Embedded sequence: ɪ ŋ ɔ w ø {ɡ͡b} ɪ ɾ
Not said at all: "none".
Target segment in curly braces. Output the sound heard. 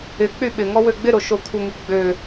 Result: ɡ͡b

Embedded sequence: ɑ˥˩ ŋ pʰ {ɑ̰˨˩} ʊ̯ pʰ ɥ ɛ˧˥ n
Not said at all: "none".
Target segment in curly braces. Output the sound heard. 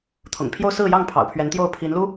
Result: ɑ̰˨˩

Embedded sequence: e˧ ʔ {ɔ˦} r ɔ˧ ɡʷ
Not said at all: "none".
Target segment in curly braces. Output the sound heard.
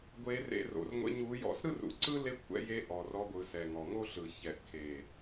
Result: ɔ˨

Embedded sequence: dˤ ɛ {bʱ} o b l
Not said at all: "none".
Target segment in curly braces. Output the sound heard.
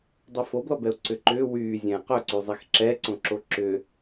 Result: f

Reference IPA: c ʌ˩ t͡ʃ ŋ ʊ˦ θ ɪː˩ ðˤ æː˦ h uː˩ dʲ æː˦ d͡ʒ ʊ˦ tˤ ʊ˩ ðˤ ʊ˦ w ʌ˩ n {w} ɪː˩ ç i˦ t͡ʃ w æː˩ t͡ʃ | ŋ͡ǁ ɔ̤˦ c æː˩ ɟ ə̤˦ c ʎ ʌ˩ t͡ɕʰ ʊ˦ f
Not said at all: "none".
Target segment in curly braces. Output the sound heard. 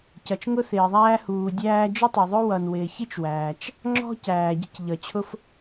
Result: w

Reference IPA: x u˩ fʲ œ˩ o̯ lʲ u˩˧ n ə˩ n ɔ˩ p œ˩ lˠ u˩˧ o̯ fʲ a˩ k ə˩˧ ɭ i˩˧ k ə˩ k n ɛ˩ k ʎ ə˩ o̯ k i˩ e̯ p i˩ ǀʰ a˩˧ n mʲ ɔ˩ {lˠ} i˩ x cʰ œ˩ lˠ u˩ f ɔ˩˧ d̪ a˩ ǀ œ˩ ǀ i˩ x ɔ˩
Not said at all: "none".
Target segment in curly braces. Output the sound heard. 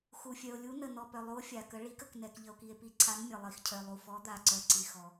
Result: lˠ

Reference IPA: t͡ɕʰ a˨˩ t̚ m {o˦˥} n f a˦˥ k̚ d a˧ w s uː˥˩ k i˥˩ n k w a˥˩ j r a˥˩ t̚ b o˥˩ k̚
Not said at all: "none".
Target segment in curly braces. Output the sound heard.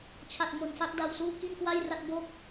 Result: o˨˩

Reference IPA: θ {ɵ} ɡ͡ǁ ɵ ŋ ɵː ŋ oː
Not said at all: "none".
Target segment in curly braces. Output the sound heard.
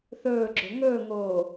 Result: ɵː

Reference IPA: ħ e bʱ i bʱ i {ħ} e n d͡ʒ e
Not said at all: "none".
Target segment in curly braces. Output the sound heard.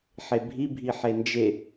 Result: ħ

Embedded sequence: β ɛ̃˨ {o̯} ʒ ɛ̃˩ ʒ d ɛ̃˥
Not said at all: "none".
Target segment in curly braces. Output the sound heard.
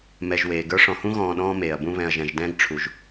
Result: ɐ̯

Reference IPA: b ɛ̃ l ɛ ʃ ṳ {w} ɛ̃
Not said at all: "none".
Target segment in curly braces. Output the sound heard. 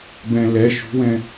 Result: w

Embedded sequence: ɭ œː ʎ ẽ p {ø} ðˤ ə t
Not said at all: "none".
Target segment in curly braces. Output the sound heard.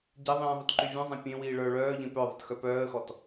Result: œ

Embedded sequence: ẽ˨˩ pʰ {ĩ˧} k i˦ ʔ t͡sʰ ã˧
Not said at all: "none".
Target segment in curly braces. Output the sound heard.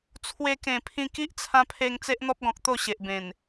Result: ĩ˧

